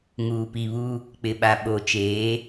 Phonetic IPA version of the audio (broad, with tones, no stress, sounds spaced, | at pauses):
ŋ uː˨ p i˨ β u˦ | k͡p ɪ˨ ɓ a˨ ɓ o˨ t͡ʃ eː˨˦